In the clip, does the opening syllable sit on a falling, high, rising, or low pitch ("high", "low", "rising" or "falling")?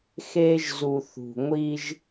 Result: high